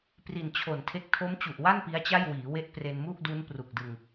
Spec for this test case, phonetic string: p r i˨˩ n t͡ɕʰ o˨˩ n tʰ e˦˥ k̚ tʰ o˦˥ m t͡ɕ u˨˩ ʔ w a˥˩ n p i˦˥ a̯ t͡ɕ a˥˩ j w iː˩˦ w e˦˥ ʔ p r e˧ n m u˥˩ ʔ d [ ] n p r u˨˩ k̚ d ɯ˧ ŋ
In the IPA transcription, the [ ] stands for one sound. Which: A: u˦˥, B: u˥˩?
A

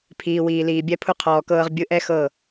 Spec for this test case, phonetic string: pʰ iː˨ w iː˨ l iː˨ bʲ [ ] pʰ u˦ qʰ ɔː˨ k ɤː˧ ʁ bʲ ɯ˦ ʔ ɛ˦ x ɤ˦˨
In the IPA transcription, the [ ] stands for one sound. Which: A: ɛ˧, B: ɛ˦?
B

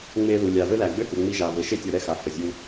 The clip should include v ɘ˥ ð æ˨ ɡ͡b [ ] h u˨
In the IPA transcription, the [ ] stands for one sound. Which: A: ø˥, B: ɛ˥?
A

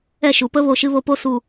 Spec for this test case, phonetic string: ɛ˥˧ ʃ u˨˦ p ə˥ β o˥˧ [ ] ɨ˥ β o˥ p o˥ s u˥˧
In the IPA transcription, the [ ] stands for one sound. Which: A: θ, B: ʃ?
B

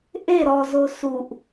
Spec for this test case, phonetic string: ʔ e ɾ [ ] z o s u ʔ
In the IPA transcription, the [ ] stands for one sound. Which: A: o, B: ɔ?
B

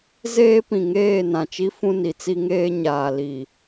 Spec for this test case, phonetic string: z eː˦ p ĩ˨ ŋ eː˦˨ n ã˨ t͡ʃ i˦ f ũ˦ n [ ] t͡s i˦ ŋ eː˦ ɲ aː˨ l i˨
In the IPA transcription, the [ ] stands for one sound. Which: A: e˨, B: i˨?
B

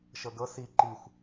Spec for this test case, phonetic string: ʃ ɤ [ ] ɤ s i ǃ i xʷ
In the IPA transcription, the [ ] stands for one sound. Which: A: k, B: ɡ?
B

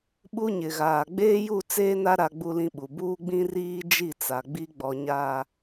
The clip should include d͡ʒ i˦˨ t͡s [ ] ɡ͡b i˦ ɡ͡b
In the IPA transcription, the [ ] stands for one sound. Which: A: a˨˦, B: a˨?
B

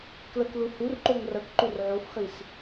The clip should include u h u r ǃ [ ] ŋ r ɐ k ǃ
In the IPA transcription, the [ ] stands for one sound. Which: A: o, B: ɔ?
A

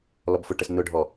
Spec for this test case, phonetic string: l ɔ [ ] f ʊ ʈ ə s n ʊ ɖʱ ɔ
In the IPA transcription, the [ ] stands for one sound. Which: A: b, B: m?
A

